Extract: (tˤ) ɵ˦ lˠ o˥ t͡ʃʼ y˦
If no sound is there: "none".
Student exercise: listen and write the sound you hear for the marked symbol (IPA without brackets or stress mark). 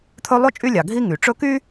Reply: t̪ʰ